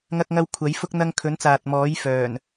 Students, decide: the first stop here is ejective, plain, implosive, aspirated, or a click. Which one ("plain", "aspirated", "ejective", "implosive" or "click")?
plain